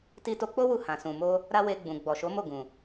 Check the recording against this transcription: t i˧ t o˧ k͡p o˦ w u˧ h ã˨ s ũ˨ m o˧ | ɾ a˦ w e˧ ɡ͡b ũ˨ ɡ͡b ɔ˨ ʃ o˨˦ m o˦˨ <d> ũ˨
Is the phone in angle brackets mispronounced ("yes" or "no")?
yes